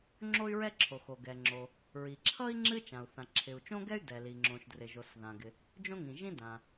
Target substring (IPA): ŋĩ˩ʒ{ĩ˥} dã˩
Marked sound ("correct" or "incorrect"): correct